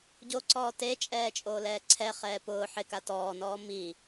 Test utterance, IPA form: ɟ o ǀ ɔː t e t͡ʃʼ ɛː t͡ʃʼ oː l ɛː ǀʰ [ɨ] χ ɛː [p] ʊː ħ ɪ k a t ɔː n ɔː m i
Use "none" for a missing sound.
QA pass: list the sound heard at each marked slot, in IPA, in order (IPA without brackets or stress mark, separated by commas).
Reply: ɛ, p